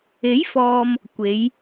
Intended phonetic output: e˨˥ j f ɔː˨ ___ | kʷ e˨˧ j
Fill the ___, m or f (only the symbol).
m